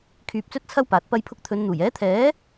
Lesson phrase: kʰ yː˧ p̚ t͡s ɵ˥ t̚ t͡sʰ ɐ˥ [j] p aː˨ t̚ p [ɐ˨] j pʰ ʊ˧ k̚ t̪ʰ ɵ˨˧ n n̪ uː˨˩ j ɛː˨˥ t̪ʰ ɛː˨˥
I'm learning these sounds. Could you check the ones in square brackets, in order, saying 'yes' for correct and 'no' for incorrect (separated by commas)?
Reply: no, no